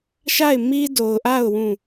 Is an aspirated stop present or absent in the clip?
absent